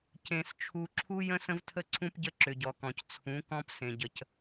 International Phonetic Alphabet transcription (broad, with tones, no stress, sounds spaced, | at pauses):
c ẽ˨ s t͡ʃʰ u˨ ǁʰ u˦ j ə̃˦ s ə̃˦ v tʰ ə˦ ǀʰ ũ˦ p ɟ ə˦ ǁ ʏ˨ ɟ ɔ˨ k ɔ̃˨ c t͡sʰ ũ˨˦ k ɔ̃˦ p s ẽ˨ ɟ ə˨ c